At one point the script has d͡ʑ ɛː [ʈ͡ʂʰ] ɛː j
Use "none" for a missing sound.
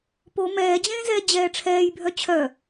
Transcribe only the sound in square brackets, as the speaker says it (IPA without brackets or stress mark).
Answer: ʈ͡ʂʰ